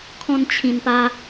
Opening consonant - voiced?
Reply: no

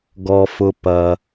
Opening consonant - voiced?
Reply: yes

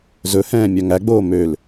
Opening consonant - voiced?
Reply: yes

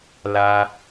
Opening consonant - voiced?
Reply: yes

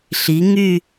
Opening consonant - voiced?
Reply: no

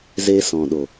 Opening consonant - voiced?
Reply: yes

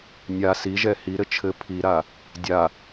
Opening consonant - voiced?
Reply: yes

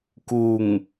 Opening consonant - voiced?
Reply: no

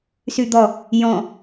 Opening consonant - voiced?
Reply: no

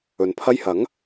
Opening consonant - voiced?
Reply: yes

